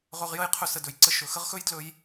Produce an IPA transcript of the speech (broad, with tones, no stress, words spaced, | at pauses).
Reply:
ʁɵ˧ʁjə˦jqʰɵ˧ sə˨dɵ˨jǀə˧ ʃɵ˨xə˦ʁxɵ˦j dlɵ˦j